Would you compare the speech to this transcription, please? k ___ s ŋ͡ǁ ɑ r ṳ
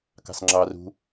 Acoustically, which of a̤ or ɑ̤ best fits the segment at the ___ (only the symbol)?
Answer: ɑ̤